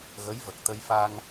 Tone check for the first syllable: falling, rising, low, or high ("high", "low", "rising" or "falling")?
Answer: rising